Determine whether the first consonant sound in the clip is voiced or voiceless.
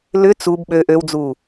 voiced